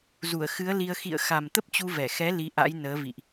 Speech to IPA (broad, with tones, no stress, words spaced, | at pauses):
zu˧˩ə̯xɨ˨˦ə̯li˧ə̯ xḭ˧˨ə̯xa˨˩m t̪ə˦˥p̚t͡ɕu˧vɛ˧˩xɛ˨˦ li˨˦ʔa̰˧˥jnəː˨˦ vḭ˧˨ʔ